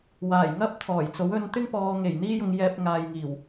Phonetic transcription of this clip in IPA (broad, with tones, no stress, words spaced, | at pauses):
waː˨˩jŋɐ˥p̚ t̪ʰɔː˨˩jt͡so˨˥wɵ˧nt̪ɪ˥ŋ pɔː˨ŋe˨˩j n̪iː˥jʊ˧ŋ jɛː˧p̚ŋaː˨jŋiː˨˩w